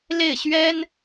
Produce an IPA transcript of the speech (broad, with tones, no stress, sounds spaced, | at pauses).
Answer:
l e˥˩ ɪ̯ ɕ ɥ ɛ˥ n